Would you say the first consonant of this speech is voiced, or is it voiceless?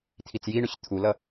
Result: voiceless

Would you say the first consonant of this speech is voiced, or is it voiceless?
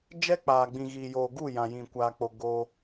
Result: voiced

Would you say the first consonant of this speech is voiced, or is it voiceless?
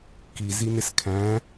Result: voiceless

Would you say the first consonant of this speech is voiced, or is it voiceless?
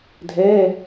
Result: voiced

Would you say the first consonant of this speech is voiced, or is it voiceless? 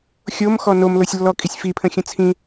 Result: voiceless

